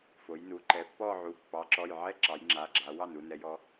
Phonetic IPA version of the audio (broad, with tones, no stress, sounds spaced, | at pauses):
f o˩˧ j n u˩˥ ǃ ɛ˩˧ pː ɔ˥˧ ʕ u˩˧˩ pː ɑ˩˥ ǁ ɔ˩˧˩ j ʕ ɛ˥˧ ǁ ɑ˩˧ j ŋ͡ǁ a˩˧˩ ɡ͡ǁ a˩˧ w ɑ˥˩ n u˥˧ n ɛ˩˧ j ɔ˩˧